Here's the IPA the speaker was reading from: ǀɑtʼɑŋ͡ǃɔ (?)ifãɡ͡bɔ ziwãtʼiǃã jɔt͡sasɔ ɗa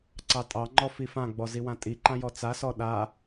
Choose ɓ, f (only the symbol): f